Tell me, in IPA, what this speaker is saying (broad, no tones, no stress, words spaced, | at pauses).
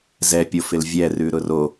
zɛpʲofɪl vʲɛrʉɾʊ ro